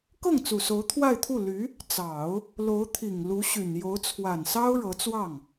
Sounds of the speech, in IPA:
k ɤ˥˩ ŋ t͡s u˨˩ s o˧˥ ʊ̯ t̪ʰ w a˥˧ ɪ̯ t̪ʰ u˥˩ l y˧˥ | t͡s ɑ˨˩˦ ʊ̯ | l o˧˥ ʊ̯ t̪ʰ i˨˩ ŋ l u˧˥ ɕ y˨˩ n j o˧˥ ʊ̯ t͡sʰ w a˨˩ n s ɑ˥ ʊ̯ ɻ ɤ˧˥ t͡s w ɑ˥˩ ŋ

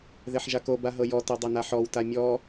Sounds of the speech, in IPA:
ð e ħ ʒ a k o b a ɦ ɤ j ɔ t o dˤ e n a ħ ɔ w t a mʲ ɔ

